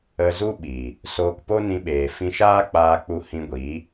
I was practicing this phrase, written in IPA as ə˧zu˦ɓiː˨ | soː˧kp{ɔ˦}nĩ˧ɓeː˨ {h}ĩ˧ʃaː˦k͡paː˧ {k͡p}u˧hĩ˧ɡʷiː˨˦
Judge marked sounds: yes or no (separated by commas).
no, no, yes